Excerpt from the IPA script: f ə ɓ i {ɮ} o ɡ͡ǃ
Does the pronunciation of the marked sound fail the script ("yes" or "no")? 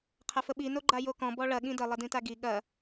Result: yes